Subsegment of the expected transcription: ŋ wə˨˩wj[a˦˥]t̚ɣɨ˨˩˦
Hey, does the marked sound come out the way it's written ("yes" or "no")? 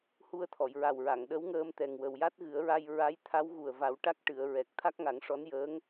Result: yes